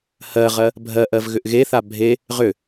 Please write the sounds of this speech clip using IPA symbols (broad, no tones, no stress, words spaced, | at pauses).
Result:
hɜʁɜ | bʱɜʔɜv ɣʏʔɣeθa bʱe | ʁʏ